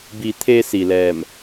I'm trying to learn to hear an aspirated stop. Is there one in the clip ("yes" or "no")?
yes